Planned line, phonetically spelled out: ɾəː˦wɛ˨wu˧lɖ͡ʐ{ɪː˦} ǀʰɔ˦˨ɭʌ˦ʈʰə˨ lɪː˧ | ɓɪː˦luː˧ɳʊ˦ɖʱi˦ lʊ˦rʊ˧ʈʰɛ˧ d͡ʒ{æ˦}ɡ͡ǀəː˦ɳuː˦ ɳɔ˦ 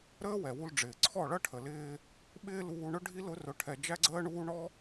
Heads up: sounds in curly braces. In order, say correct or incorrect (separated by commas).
incorrect, correct